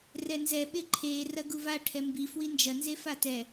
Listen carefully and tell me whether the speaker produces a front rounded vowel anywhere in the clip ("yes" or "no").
no